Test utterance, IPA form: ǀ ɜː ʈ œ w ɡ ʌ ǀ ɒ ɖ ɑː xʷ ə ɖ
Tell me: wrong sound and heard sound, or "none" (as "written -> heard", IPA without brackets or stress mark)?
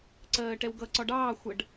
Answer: œ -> ɛ